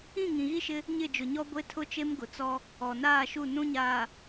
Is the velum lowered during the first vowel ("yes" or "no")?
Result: yes